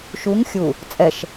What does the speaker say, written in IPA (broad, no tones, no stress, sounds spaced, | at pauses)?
ʃ u ŋ xʲ u | t͡sʼ ɛ ʃ